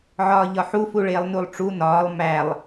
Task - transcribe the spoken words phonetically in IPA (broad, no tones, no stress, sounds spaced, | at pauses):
ʕ ɒː ʎ ɒ ħ u f u ɭ eː lˠ n u lˠ ʈ͡ʂ u n ɒː lˠ m æ lˠ